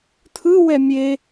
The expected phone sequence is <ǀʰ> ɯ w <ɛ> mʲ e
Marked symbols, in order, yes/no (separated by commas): no, yes